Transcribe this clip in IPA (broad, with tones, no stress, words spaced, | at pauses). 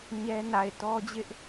ɲɛ˦ na˨ɪ̯tɔ˦d͡ʑɪ˦ʔ